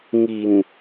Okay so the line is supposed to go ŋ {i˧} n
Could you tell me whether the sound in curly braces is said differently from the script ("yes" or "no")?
yes